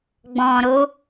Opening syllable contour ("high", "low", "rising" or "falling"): low